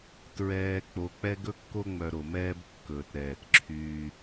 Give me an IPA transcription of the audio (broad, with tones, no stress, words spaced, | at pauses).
tɹɛː˨ k͡po˨k͡pɛ˦ ɡɵ˦kːo˦ŋ͡mœ˨ ɾo˨mɛː˦bkːɵː˨t ɾɛː˨tǁʰyː˦